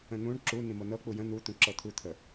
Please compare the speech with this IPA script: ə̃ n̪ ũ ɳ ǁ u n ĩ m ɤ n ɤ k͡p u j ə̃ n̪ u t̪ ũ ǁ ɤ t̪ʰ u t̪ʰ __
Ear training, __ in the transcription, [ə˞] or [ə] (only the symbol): ə